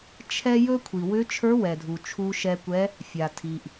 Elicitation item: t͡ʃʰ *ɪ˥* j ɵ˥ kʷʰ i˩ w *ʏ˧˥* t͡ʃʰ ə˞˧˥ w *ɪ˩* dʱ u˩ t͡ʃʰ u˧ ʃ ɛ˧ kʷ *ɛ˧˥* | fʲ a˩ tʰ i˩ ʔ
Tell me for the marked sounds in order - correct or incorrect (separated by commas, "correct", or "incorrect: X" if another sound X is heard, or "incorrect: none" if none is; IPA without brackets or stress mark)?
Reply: incorrect: ɛ˥, correct, incorrect: ɛ˩, correct